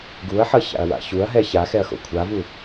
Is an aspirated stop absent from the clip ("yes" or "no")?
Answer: no